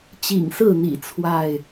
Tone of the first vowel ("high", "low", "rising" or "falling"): low